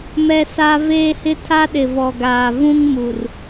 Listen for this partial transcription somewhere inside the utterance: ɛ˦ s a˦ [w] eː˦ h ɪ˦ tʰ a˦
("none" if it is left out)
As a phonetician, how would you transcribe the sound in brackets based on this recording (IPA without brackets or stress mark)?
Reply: v